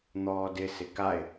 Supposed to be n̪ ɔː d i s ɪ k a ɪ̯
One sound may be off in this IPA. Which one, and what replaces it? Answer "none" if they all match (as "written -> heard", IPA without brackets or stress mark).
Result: i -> ɪ